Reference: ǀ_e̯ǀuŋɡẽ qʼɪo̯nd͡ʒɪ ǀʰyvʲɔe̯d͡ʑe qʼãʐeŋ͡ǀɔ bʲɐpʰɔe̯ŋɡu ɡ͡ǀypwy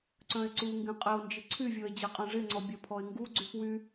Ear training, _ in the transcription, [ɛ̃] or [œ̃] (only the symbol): œ̃